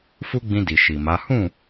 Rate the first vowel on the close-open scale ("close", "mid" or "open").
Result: close